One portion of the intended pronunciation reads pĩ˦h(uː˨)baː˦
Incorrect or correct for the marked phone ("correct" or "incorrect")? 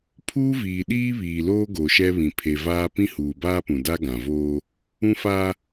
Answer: correct